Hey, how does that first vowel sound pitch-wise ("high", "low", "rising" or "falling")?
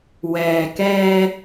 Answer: low